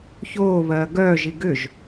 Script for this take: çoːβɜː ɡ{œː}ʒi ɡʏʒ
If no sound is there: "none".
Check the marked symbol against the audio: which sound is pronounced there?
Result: œː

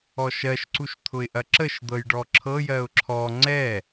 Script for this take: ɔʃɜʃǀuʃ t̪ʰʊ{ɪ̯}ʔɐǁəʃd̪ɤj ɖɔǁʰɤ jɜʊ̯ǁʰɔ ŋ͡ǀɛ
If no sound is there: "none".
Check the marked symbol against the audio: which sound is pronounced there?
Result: ɪ̯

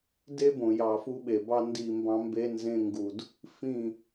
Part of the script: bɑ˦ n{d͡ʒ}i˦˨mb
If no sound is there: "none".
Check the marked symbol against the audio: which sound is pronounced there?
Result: d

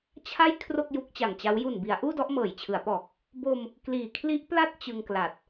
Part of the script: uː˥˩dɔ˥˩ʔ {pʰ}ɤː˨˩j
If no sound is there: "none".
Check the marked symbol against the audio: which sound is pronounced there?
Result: m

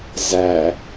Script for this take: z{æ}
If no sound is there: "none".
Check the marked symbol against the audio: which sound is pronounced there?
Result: æ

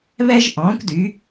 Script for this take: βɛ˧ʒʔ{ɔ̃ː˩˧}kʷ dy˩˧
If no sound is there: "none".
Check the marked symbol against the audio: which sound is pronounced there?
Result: ɔ̃ː˩˧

